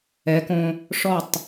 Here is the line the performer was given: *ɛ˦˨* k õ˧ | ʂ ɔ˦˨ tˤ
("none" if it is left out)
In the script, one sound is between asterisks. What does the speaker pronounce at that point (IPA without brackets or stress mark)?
ɛ˨˦